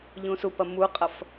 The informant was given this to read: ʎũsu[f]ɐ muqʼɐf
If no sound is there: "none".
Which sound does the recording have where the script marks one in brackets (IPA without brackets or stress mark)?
p